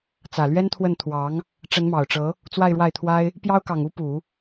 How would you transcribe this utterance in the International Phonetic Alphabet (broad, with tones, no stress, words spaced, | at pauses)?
t͡sä˨˩lɥɛ˥nt̪ʰwə˥˩n t̪ʰwɑ˧˥ŋ | ʈ͡ʂə˧˥nmɑ˨˩ʊ̯ʈ͡ʂɤ˧˥ | t͡swa˥˧ɪ̯ɻwa˥˩ɪ̯t̪ʰwa˥ɪ̯ | pjɑ˥ʊ̯kɑ˨˩ŋ u˥pu˨˩˦